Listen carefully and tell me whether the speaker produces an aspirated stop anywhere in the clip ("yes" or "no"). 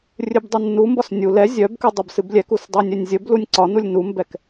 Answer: no